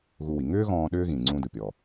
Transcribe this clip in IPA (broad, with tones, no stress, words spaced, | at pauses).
ɣu˧wi˩ ŋʏː˥ɣɔ̃ː˧ ɗʏː˥ɣĩ˩ ŋ͡ǀũ˧ dɯ˩pʲɔ˩